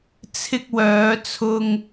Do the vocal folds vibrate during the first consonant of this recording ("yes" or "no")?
no